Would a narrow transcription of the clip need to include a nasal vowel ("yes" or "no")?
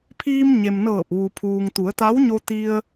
no